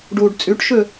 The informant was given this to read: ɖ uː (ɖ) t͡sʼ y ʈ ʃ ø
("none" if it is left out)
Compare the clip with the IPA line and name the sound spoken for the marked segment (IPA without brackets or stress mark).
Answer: ɖ